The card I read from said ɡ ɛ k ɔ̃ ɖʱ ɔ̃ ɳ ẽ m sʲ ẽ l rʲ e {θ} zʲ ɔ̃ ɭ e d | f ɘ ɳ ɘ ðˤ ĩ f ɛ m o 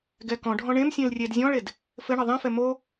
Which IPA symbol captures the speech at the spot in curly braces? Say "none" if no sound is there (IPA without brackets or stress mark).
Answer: d